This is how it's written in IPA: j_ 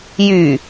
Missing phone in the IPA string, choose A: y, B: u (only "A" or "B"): A